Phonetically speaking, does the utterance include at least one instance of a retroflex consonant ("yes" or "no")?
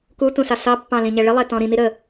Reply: yes